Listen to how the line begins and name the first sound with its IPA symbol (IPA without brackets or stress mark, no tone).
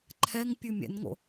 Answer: ǃʰ